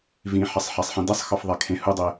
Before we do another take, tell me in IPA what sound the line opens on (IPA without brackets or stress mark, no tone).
v